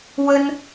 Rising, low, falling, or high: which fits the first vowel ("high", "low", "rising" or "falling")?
high